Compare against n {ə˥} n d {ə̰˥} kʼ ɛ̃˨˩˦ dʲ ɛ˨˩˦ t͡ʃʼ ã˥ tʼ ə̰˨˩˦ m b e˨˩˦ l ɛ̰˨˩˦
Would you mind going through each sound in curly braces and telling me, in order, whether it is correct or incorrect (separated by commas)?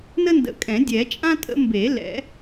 correct, incorrect